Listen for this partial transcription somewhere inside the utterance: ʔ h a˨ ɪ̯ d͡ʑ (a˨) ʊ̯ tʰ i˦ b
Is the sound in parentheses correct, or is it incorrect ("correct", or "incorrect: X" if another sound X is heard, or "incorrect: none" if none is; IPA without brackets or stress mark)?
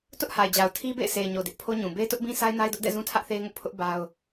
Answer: correct